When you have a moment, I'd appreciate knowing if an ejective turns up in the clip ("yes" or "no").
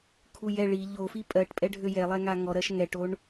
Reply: yes